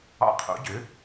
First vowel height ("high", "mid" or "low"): low